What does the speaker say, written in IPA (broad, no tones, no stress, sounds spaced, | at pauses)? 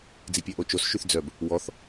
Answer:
d͡z i pʲ ɛ ʔ o t͡ʃ o s ʃ y θ d͡z œ b | w ɔ θ